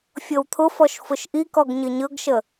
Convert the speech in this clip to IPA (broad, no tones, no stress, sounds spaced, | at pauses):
fʲ ɤ w t̪ʰ ʊ f ɔ ʃ f ʊ ʃ ʔ i k ɔ ɡ ɲ ə ɲ ɤ ɡ ʃ ə